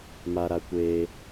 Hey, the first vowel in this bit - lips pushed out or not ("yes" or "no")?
no